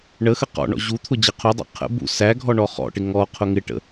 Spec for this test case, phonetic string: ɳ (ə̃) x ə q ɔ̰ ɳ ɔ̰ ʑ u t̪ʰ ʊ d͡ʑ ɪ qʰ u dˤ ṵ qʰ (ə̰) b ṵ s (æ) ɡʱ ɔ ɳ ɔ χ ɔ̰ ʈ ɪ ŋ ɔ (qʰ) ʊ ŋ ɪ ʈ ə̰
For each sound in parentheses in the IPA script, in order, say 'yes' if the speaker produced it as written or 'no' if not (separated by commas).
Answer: no, yes, yes, yes